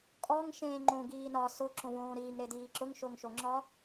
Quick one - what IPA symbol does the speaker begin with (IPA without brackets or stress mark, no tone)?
kʼ